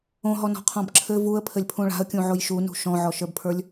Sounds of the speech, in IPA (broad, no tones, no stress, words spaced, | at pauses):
õɦɔnɔ̤qʰɔ̃b ǁʰɘ vuə̯pʰɘlʲpʰũ ɭa̤ə̯kʲũʕoj ʃunṳ ʃɔ̃ʕɔʃə˞bpʰə˞lʲ